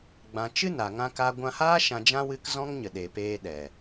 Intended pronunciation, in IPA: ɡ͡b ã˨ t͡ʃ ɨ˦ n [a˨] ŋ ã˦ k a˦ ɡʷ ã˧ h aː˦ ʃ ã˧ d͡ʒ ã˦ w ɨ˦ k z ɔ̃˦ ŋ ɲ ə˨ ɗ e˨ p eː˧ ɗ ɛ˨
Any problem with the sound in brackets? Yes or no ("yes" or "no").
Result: no